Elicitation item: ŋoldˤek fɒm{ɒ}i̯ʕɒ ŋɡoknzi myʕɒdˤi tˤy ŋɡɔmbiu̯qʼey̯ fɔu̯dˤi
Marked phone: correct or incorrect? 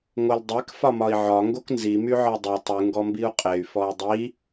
correct